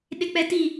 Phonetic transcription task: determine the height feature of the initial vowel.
high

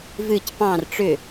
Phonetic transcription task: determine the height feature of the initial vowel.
high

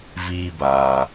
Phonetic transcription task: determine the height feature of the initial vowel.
high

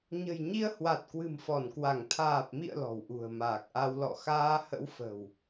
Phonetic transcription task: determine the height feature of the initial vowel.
mid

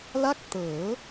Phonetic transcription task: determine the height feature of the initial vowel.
low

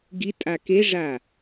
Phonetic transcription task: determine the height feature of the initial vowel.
high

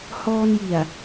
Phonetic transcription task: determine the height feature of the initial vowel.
mid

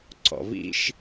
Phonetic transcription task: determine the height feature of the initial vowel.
mid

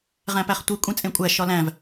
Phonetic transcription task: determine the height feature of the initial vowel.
low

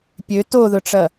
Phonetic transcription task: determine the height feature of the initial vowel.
mid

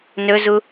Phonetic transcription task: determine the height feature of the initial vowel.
mid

